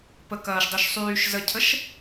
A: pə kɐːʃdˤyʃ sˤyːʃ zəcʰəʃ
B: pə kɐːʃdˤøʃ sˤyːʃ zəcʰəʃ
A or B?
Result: A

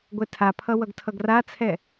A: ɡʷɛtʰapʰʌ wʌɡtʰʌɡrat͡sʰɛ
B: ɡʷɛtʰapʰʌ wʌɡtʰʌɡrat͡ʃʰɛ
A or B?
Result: A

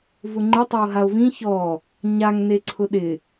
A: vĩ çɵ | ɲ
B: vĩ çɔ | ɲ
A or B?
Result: B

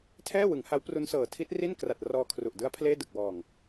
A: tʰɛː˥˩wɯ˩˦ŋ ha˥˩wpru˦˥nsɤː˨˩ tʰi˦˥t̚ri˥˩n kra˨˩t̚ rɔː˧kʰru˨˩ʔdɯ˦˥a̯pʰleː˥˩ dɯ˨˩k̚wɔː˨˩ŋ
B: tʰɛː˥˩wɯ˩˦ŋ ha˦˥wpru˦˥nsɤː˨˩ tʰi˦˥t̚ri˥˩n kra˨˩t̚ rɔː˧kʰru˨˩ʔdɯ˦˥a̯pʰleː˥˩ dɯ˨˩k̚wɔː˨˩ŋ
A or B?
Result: B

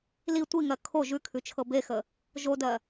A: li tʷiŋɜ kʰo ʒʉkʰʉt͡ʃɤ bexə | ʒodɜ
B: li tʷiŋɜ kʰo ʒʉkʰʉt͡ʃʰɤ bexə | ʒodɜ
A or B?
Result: B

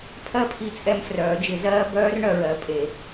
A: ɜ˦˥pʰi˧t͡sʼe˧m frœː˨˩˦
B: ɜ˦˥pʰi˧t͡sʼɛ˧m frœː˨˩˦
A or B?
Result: B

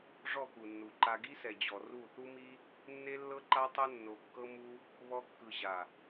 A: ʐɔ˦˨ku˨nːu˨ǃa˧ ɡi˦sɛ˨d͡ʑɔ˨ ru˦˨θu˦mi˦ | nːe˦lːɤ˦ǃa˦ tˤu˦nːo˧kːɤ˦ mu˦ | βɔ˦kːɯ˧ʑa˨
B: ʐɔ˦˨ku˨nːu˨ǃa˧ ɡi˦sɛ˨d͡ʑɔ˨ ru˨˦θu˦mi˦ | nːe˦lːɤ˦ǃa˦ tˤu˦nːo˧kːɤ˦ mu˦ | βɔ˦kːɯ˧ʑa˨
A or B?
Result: A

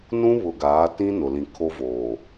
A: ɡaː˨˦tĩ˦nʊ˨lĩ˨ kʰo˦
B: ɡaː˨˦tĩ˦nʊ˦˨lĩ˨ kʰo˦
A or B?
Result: A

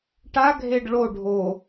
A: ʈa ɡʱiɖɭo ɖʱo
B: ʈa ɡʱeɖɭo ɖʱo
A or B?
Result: B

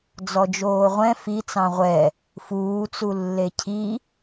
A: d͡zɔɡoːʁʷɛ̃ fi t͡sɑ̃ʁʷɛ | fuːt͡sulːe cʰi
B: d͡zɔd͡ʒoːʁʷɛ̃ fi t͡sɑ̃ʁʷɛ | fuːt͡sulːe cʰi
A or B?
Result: B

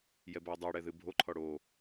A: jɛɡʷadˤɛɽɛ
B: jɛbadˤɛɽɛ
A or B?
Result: B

